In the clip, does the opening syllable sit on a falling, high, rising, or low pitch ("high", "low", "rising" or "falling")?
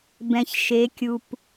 low